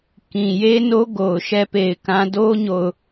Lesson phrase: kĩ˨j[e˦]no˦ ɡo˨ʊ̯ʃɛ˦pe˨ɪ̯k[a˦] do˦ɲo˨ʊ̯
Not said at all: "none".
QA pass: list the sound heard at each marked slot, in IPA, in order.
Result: e˦, ã˦

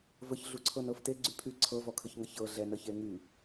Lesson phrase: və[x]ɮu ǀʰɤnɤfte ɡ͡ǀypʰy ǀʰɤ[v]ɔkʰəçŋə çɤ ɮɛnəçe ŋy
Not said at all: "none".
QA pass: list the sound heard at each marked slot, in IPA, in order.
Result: ç, v

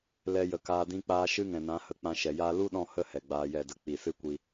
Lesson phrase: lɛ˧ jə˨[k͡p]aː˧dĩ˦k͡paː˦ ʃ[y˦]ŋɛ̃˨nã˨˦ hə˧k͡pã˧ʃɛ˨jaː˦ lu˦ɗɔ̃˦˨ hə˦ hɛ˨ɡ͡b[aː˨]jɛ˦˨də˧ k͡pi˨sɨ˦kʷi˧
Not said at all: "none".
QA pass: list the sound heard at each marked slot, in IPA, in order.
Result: k, ɨ˦, aː˧

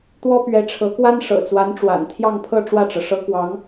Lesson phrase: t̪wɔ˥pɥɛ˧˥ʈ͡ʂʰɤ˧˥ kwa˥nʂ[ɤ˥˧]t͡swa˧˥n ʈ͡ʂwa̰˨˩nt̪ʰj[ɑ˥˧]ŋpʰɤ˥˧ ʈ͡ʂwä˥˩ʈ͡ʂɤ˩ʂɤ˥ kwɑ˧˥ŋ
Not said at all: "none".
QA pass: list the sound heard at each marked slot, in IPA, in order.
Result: ɤ̰˨˩, ɑ˥˧

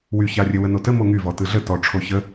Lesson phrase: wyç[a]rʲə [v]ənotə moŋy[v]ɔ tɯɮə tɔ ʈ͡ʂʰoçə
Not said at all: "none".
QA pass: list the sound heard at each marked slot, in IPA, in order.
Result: a, w, v

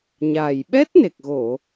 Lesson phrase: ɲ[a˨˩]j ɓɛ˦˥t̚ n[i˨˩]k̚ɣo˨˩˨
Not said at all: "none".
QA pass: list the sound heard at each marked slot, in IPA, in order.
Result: a˨˩, e˨˩

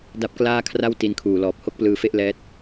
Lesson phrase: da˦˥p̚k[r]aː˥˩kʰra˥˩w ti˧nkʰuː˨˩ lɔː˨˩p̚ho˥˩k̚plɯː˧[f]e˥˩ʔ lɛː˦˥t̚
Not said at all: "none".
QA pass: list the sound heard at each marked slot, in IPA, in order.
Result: l, f

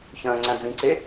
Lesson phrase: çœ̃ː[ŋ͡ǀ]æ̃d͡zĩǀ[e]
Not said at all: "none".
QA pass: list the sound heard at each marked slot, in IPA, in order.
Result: ŋ͡ǀ, e

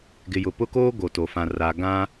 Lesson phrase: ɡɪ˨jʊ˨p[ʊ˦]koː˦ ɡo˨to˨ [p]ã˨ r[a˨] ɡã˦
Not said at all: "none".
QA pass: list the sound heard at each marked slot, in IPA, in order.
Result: ʊ˦, f, a˨

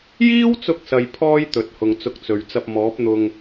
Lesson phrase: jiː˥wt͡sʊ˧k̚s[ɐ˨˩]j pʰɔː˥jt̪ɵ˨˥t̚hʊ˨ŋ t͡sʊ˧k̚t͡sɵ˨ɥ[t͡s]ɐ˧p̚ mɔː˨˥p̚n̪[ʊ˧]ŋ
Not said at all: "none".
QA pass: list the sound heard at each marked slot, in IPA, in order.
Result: ɐ˨, t͡s, ʊ˧

